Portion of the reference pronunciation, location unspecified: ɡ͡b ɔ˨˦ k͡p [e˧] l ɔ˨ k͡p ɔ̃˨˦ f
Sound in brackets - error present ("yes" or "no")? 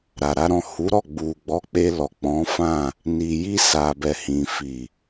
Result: no